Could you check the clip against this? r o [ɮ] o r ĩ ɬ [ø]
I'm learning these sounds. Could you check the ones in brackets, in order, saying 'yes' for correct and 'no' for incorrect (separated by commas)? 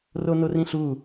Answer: no, no